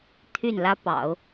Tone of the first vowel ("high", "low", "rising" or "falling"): falling